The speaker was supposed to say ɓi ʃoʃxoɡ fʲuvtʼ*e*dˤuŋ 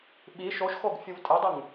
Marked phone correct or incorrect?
correct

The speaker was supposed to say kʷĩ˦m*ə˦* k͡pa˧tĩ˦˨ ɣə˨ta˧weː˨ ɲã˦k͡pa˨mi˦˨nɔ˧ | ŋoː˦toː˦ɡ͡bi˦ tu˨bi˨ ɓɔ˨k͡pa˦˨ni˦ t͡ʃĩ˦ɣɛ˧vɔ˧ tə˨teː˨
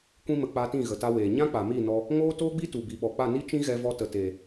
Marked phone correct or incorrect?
incorrect: ə˧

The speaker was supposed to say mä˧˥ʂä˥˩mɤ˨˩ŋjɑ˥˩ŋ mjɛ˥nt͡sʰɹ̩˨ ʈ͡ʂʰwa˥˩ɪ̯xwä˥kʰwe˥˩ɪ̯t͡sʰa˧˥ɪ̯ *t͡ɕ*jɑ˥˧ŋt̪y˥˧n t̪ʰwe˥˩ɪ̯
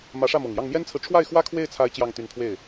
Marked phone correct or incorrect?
correct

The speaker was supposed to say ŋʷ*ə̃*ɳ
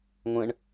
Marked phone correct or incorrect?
correct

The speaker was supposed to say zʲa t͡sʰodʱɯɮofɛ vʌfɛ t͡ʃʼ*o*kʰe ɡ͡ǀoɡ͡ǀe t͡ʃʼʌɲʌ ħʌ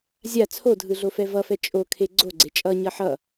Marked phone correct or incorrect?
correct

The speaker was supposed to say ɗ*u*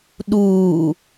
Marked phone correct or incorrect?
incorrect: uː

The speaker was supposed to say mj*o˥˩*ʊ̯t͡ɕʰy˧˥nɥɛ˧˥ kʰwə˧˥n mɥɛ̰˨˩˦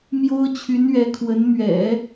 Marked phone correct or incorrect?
incorrect: o˥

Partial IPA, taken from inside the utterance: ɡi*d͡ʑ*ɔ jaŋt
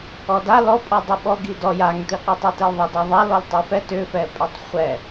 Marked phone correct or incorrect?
incorrect: d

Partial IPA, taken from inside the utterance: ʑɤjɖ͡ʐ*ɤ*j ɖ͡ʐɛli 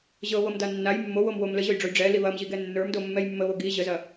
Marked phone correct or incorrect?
incorrect: o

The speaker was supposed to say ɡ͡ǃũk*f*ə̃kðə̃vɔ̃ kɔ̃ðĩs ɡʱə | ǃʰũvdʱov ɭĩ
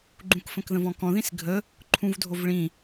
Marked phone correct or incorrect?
correct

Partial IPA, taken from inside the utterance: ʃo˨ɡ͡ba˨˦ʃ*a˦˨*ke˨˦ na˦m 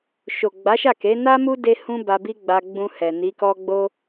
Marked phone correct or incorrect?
correct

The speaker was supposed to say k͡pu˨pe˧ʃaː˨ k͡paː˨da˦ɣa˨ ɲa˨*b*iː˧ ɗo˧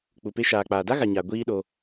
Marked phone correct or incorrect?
incorrect: ɡʷ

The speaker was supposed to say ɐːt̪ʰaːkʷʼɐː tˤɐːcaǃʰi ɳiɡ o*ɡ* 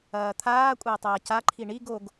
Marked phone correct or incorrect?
correct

